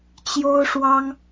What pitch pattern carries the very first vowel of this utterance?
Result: high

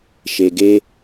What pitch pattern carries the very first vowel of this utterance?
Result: low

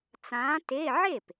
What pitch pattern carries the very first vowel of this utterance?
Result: rising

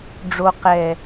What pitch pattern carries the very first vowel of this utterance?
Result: low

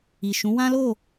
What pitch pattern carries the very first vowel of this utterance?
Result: low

